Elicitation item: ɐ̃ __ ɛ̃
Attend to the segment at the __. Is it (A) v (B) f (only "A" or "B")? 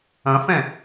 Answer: B